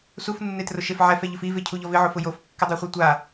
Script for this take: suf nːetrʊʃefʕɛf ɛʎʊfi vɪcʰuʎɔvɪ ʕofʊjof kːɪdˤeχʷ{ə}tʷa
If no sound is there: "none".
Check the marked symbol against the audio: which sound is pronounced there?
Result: ɛ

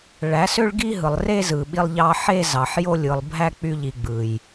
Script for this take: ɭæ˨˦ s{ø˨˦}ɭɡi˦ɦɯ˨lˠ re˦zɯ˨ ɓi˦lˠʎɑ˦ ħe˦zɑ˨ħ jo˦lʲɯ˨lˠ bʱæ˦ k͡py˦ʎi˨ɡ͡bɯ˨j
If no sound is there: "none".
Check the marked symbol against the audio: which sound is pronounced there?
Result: ø˦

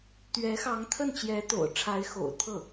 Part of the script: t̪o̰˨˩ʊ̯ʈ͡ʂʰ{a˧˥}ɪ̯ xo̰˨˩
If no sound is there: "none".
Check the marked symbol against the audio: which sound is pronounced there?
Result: a˧˥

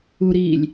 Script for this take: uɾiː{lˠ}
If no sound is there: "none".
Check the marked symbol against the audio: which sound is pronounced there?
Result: lʲ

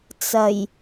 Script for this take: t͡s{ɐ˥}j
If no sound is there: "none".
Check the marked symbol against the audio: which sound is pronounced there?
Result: ɐ˨˩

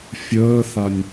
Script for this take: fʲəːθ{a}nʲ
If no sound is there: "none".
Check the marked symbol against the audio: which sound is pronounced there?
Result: a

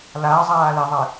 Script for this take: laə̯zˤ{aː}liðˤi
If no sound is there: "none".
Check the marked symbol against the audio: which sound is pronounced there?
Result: aː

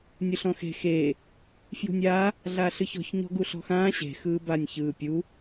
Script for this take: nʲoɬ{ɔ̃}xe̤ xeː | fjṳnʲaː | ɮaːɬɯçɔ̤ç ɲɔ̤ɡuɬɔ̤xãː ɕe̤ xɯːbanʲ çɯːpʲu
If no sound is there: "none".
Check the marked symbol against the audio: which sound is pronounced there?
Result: ɔ̃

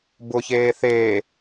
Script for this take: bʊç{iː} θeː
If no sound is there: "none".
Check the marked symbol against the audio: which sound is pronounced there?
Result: eː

